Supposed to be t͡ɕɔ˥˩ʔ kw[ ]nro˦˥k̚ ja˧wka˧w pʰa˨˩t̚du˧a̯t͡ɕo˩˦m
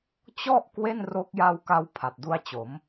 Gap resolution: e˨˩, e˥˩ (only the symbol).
e˥˩